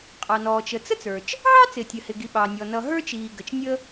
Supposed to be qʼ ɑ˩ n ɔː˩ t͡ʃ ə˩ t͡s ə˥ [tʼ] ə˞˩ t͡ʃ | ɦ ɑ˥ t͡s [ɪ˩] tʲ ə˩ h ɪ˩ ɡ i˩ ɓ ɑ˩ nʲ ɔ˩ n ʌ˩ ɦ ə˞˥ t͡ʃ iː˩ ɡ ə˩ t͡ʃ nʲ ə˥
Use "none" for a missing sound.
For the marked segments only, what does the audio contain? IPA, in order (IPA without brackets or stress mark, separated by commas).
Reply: t͡s, ɪ˩